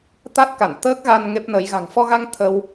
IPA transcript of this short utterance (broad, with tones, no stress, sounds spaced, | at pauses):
t̪ a˦˥ t̚ k a˧˩ n t̪ əː˦˥ k̚ ɣ a˧ n ŋ e˦˥ p̚ n ə˨˦ j ɣ a̤˨˩ ŋ f ɔ˧ ɣ a˧ ŋ t̪ʰ ə˧ w